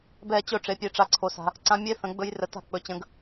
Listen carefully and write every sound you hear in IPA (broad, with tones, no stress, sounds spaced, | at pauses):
b ɛ˦˨ t͡ɕ ɵ˦˨ ʈ͡ʂ e˨˦ pʲ e˨˦ ʈ͡ʂ a˨ ǀʰ o˨ s a̤˨ | ǀ ã˦ mʲ e˦ θ ə̃˨˦ ɡ͡b ɵ˦ j r ə˨˦ t a̤˦˨ k͡p ɵ˨˦ t͡ɕ ə̃˨˦ ɡ